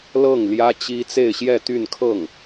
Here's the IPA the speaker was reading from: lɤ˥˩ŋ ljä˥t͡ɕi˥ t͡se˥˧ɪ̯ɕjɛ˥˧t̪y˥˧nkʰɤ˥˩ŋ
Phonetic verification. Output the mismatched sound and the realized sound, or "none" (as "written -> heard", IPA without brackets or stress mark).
none